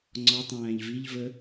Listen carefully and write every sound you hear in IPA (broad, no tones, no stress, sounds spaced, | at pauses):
ŋ͡ǀ ɔ tˤ æ̃ː ʎ v i ʎ v ə